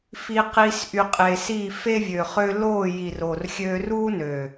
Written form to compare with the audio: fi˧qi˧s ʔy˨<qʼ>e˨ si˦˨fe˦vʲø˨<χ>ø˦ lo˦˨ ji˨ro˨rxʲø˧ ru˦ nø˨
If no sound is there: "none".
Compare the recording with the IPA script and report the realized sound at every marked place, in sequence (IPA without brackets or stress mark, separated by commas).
qʼ, χ